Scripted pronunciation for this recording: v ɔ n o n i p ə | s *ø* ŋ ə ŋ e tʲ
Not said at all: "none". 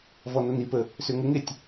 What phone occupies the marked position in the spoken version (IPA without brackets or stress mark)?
ø